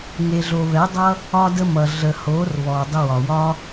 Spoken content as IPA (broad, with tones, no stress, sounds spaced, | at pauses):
ŋ e˧ ɮ o˧ β ɛ˨˦ dˤ ʌ˦ | ɒ˦ d ə˦ m ʌ˨ ɮ ə˨ h o˨˦ r β ɔ˨ dˤ ə˧ w ɒ˨ w ɒ˦